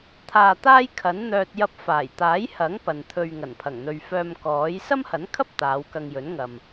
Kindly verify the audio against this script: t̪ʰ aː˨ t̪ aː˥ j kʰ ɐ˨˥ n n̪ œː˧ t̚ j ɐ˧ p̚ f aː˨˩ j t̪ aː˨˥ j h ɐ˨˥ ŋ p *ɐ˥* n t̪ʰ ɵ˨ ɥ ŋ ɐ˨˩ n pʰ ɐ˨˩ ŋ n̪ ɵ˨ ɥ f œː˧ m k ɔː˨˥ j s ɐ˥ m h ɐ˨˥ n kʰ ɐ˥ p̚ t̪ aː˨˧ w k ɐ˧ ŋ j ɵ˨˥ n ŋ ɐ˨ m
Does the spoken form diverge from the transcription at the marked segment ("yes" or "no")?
yes